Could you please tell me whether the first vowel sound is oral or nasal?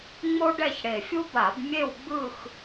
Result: oral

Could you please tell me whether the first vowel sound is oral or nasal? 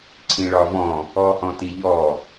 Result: nasal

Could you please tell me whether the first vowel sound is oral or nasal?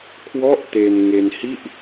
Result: oral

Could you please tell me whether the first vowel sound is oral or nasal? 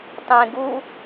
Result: nasal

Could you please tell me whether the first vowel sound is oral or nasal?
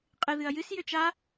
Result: oral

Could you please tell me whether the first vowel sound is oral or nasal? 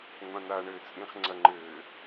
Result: nasal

